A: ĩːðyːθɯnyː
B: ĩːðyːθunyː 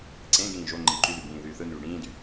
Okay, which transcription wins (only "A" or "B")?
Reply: A